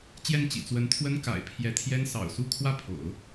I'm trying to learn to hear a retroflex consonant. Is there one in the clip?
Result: no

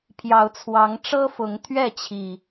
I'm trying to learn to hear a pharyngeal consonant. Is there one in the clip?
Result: no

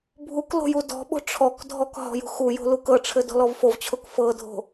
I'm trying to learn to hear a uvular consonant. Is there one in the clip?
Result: no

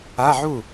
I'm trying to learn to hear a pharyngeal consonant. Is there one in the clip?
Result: yes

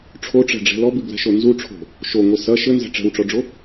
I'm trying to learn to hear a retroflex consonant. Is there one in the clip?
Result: yes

